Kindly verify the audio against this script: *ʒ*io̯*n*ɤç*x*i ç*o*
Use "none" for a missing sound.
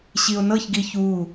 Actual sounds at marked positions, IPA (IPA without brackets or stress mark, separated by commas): ɕ, n, ɡ, u